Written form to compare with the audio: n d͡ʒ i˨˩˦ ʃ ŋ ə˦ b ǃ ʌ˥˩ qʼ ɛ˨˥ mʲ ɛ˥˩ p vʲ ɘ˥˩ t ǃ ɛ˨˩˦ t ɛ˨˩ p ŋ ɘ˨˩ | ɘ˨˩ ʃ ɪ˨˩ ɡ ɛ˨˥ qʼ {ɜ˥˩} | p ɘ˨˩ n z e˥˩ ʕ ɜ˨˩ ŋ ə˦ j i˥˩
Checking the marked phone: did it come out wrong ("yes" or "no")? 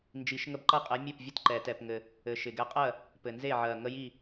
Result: no